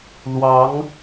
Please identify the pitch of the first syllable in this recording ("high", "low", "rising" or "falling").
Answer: rising